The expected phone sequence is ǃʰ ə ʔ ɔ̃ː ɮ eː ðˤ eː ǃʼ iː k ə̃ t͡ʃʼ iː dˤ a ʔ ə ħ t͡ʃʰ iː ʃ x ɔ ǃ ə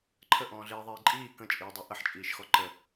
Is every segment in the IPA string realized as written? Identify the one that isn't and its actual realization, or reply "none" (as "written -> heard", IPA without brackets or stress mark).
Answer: t͡ʃʰ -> t͡ʃʼ